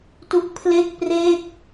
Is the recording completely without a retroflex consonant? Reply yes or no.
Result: yes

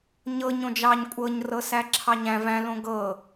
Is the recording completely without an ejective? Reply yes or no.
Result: no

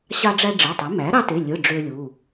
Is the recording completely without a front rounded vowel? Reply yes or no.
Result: no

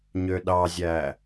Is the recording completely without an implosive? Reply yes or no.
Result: no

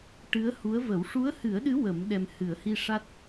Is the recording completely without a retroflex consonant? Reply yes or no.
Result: no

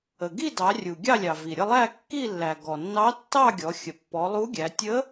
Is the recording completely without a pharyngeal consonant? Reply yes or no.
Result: yes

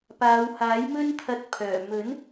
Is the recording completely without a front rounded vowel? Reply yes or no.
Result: no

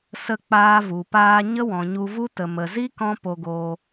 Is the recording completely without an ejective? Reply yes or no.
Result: yes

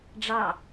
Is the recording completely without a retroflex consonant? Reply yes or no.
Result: no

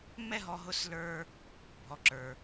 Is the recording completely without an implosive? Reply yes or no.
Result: yes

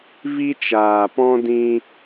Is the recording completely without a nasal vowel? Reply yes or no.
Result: no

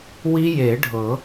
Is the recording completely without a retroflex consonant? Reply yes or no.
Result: no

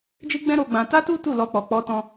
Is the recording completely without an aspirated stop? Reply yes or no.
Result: yes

